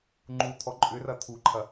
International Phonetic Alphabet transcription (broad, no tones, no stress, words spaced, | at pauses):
ŋ͡ǃut̪ʰɔ ǃʼʏrɐ t̪ʰuǃʰɐ